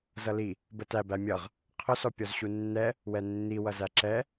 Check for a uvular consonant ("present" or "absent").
present